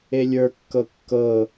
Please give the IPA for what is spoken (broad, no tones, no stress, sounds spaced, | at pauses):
e lʲ ə˞ kː ɤ kː ɤ